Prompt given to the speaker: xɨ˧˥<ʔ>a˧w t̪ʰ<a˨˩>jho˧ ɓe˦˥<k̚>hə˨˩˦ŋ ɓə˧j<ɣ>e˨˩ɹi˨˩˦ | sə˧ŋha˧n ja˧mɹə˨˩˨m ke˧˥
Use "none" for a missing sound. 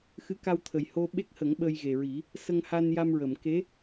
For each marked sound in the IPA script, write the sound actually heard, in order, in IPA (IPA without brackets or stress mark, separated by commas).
k, ə˨˩, k̚, ɣ